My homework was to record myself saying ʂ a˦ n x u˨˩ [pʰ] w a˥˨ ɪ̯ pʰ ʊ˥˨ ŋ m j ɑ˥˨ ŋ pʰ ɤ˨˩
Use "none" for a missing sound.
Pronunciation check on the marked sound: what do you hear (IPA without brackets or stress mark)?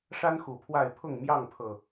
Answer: pʰ